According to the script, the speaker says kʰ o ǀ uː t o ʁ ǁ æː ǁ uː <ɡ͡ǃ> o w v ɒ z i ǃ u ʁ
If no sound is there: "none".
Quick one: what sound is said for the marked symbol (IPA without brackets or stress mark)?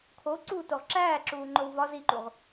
ŋ͡ǃ